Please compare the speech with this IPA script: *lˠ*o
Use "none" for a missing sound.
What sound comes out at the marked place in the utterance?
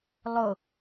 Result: lˠ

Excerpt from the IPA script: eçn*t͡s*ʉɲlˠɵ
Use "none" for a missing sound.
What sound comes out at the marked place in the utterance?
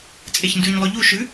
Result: d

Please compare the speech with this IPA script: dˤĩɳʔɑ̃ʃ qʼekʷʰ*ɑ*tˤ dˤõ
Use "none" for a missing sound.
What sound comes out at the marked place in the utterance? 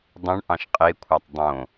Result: ɑ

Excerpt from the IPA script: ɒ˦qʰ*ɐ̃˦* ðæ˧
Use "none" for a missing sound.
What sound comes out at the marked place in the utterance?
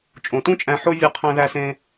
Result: æ̃˦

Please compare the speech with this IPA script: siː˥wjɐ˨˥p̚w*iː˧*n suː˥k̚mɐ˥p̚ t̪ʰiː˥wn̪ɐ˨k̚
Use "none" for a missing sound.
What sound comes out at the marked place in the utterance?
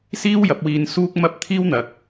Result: iː˧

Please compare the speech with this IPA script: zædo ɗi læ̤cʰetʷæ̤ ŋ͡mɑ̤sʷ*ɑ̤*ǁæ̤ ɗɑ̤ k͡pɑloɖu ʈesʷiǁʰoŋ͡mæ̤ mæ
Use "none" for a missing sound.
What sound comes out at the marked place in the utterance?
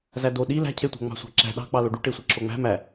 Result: ɑ̤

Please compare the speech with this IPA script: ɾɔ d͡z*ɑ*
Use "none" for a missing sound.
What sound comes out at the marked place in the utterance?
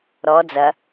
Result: ɐ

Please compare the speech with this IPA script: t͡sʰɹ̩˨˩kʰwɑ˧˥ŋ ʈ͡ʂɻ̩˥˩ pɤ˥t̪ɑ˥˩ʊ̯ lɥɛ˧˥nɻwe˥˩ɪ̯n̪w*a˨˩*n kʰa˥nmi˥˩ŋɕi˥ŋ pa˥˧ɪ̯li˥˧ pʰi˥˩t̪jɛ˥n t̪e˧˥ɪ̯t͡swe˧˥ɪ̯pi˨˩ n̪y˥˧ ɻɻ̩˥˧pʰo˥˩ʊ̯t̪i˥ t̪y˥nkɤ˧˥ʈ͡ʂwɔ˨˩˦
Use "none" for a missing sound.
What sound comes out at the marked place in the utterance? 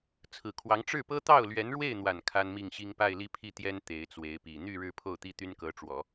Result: a˨˩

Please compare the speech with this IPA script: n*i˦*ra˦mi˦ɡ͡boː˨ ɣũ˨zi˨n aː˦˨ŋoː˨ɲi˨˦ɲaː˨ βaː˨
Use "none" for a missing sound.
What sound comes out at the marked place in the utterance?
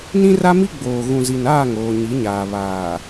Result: ĩ˦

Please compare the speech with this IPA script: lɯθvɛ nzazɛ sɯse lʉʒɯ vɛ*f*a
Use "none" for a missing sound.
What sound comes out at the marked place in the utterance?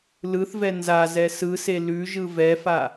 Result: f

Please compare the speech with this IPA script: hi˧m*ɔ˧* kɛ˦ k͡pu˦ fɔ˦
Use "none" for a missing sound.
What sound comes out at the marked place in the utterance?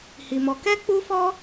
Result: ɔ˧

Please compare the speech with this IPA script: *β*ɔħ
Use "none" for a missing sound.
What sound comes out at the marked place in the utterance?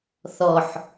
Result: θ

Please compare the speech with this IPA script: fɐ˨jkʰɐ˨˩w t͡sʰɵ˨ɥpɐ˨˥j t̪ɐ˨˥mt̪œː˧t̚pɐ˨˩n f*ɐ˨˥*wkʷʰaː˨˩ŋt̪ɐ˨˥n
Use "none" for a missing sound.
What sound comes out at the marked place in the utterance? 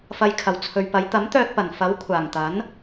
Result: ɐ˨˥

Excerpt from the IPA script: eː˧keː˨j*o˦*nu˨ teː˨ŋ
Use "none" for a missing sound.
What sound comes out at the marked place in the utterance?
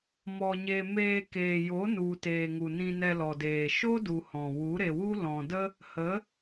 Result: o˨˦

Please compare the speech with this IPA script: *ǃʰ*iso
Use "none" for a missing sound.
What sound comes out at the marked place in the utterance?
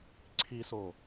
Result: ǀʰ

